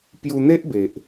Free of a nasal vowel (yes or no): yes